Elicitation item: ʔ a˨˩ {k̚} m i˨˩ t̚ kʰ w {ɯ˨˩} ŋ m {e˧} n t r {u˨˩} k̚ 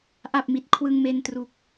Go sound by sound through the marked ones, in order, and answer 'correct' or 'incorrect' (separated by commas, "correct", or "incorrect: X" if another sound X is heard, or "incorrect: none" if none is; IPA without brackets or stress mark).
incorrect: p̚, incorrect: ɯ˧, correct, correct